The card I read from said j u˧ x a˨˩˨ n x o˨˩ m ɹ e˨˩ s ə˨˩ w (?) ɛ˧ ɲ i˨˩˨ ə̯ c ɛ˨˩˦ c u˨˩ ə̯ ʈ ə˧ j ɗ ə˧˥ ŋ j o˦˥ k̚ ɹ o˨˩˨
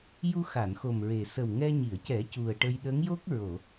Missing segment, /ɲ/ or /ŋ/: ŋ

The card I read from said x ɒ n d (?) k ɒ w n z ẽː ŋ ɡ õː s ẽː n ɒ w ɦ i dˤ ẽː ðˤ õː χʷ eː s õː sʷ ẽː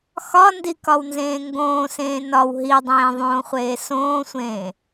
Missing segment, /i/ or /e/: i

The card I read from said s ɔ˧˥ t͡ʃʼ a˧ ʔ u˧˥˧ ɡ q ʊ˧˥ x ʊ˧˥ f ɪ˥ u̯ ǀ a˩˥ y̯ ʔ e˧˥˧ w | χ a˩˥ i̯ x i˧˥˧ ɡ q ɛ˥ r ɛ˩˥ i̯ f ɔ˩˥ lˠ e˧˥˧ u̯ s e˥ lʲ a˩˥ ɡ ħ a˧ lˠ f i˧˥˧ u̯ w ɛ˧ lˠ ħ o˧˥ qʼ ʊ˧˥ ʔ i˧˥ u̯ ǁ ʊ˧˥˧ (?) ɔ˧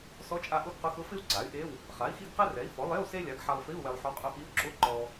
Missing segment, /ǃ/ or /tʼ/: ǃ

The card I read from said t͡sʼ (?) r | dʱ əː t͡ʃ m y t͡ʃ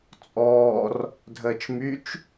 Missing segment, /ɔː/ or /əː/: ɔː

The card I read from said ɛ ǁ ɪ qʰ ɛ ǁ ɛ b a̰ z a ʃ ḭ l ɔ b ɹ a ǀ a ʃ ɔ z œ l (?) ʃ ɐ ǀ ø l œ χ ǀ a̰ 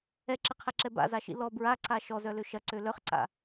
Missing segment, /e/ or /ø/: ø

